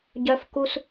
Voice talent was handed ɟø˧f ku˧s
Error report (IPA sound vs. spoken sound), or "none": ø˧ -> œ˧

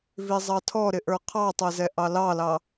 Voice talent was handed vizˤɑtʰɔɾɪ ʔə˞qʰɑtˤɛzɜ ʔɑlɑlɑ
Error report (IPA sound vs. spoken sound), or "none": ɜ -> ɛ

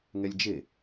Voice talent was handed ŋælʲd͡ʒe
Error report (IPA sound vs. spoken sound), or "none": æ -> ɛ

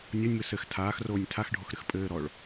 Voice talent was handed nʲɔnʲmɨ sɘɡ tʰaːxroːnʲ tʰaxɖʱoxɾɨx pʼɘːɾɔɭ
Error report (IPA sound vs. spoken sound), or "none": ɡ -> x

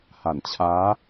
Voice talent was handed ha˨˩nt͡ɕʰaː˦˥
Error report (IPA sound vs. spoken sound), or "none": none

